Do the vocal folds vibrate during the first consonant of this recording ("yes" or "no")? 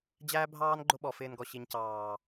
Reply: yes